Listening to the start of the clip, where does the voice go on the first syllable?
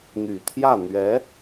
low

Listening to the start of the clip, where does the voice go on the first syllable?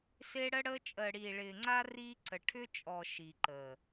high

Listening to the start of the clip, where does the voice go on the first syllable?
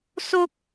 high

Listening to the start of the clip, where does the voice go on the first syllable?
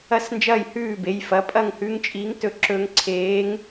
falling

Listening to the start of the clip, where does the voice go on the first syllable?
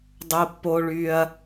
high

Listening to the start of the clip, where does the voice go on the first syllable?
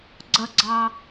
high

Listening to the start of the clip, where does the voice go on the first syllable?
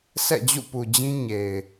falling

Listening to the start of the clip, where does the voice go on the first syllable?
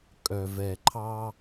low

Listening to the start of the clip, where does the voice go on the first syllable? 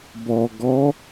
low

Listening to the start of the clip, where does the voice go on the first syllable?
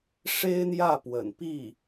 high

